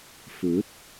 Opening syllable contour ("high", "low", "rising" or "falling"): rising